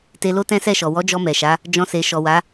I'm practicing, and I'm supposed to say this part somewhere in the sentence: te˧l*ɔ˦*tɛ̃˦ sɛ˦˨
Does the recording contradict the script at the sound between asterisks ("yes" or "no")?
yes